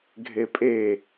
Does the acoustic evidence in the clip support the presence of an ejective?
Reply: yes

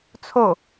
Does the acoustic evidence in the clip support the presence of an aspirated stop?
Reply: yes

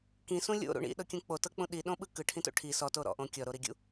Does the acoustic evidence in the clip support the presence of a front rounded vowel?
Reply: no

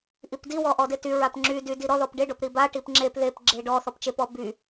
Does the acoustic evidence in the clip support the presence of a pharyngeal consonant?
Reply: no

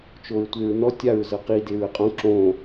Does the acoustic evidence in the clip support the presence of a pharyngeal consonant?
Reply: no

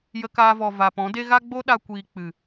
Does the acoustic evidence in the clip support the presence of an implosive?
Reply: yes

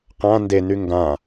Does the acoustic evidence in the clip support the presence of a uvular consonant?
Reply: yes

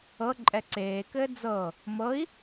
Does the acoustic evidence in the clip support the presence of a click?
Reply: yes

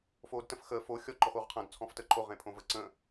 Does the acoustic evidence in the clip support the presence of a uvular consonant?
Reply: yes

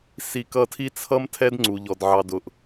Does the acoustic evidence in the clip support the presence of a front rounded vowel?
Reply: no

